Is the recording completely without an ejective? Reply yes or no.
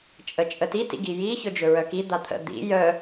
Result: no